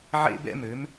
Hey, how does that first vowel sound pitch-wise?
high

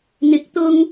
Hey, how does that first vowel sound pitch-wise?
rising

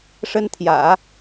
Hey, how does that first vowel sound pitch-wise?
high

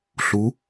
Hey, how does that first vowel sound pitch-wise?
rising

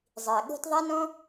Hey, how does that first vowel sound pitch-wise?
low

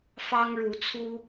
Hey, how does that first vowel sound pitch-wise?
high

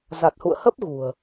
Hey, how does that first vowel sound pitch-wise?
low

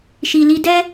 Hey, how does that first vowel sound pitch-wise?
low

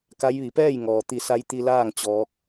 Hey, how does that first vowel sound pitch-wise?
rising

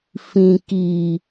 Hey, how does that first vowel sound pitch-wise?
low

